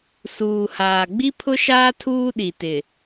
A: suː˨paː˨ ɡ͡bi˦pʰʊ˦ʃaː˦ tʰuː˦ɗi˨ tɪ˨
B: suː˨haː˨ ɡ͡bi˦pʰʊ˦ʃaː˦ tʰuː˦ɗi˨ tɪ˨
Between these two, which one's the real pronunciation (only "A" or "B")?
B